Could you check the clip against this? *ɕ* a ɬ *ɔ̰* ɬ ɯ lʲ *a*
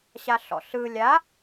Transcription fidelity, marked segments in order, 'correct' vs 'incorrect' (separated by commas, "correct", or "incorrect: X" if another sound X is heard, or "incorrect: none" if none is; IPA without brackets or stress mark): correct, correct, correct